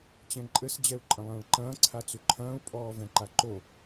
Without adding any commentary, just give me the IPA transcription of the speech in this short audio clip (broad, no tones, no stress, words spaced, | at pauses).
t͡ɕɛ̃ǃʼɘs d͡ʑɛu̯ǃʼɐ̃lˠɐ̃ːɭǃɐ̃ː ǀʰat͡suǃʰɐ̃ːu̯ pʼɔːvɛ̃ǃaǃo